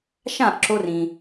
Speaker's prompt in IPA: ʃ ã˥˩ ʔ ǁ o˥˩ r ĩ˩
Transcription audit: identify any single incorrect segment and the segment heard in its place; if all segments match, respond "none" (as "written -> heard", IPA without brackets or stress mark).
o˥˩ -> o˧